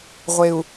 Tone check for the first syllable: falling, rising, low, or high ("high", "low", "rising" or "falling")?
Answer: low